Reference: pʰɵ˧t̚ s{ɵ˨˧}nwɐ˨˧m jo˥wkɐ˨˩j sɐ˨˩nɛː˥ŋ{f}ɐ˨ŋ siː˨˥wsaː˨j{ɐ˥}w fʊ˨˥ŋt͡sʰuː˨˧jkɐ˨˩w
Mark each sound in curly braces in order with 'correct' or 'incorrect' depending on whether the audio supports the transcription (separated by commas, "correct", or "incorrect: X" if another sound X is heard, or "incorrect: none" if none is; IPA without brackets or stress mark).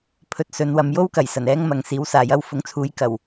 correct, incorrect: m, correct